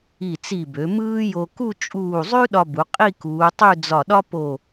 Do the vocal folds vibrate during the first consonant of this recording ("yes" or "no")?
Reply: no